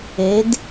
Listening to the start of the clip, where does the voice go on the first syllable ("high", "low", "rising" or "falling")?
rising